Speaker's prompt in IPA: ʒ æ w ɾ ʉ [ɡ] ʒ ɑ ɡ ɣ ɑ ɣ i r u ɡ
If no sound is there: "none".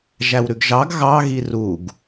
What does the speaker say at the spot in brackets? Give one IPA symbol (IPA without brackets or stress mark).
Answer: ɡ